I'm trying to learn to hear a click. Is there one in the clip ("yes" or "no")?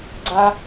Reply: yes